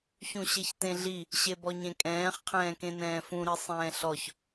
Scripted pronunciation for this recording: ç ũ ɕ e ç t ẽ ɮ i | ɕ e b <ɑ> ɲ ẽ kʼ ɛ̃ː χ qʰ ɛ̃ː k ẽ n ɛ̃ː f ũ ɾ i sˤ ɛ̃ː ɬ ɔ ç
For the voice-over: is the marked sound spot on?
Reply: no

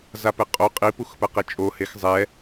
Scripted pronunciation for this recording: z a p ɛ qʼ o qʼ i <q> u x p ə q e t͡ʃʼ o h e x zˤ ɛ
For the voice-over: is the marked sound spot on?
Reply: no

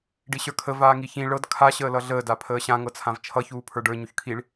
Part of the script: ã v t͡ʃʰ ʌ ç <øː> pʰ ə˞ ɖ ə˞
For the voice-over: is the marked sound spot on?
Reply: no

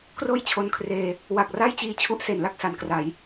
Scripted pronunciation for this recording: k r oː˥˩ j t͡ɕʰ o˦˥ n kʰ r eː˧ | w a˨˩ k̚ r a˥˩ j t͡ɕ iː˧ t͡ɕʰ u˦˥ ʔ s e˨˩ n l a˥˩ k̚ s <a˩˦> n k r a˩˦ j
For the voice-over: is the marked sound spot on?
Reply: yes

